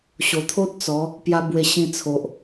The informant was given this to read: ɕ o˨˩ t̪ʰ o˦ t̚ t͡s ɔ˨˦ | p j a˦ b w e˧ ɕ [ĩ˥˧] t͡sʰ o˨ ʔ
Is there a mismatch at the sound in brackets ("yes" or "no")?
yes